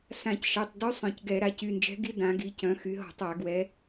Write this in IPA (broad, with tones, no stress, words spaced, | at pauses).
sã˧˩˧cʃɛ˩˧˩tˤdy˧˥ sˤœ̃˧˩˧cɡɛ˧˩˧ ɾa˩˧cy˩˧˩nd͡ʒɛ̤˧˥ɡi˧˥ dã˩˧ɡi˩˧cœ̃˩˧ xy˩˧ɦɔ̤˧˩˧tˤa˧˩˧ ɡwɛ˩˧